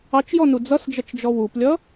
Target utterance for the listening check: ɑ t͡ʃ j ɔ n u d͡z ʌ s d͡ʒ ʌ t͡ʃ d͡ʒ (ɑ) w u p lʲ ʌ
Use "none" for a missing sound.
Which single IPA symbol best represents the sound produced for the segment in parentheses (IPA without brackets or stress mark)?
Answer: ɔ